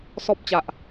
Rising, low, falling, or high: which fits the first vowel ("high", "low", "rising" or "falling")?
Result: high